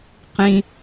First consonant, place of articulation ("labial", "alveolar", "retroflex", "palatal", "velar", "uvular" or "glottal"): uvular